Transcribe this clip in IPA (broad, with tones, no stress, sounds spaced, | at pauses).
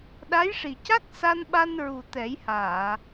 ɗ a˧˥ j ʂ i˨˩ c a˦˥ k̚ s a˧ n ɓ a˧ n ɹ u˨˩ t̪ ɛ˨˩˦ j h aː˨˩˨